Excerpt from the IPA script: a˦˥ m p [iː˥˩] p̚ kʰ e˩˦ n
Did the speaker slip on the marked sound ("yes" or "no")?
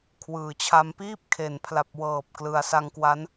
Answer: no